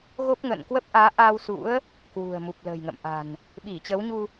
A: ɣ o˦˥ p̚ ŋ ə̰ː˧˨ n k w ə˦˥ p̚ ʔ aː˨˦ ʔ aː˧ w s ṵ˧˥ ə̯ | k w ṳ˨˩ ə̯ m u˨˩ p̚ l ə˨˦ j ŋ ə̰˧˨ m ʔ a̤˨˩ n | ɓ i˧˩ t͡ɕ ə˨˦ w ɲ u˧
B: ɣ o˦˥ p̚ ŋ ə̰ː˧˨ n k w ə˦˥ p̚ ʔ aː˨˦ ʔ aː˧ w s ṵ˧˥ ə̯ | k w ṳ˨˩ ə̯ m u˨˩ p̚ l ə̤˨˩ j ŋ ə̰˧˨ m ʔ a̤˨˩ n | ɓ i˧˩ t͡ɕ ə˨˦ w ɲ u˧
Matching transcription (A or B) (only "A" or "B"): B